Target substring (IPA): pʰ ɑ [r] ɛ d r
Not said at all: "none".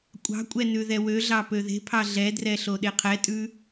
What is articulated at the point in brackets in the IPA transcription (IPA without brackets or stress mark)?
ɮ